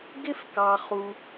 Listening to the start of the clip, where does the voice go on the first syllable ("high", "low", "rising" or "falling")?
high